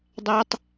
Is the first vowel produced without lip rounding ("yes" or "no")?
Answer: yes